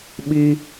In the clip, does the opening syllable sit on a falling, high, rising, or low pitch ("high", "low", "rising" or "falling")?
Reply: high